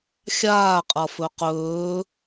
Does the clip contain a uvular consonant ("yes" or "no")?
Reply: yes